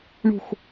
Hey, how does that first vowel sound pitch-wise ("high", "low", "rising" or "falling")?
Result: falling